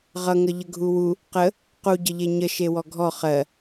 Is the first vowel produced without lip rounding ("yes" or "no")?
yes